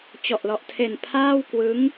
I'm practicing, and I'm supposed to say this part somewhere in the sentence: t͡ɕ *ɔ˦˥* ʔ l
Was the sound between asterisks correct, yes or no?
no